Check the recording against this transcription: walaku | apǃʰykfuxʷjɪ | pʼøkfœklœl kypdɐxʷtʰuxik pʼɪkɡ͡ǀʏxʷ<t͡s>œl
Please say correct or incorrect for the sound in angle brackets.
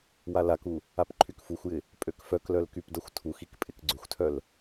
incorrect